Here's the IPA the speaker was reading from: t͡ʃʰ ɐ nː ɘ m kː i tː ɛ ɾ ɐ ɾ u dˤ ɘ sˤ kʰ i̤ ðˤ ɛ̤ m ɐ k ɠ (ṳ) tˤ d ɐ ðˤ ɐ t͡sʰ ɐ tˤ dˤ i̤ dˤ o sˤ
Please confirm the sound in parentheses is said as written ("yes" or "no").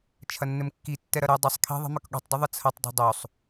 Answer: yes